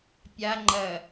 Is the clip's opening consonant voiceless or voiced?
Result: voiceless